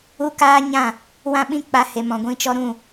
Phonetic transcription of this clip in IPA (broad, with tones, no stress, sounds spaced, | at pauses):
u˦ k aː˦ ɲ ã˦˨ | w ã˦ ɓ ĩ˦ k͡p a˦ h e˧ m ɔ̃˨ ɡʷ ĩ˧ t͡ʃ ɔ˧ ɾ ũ˦˨